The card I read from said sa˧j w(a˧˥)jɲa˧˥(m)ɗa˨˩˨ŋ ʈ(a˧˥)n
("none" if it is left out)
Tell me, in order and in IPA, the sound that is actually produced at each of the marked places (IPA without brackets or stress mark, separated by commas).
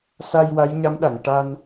a˧˥, m, a˧